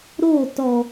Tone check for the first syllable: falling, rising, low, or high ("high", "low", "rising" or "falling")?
falling